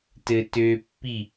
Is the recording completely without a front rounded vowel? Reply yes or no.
no